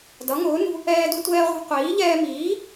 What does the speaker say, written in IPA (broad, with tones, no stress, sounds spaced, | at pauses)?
d ʌ˨˥ ŋ ʊː˨˥ n ṳ˦ | ɛː˦ d u˦ tʷ ɛː˦ ʁʷ ɑ̤˦ qʷ iː˨˥ ʎ ɛː˦ m iː˨˥